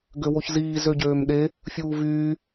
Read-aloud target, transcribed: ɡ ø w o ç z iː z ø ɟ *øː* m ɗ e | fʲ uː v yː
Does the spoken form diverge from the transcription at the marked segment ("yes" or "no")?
no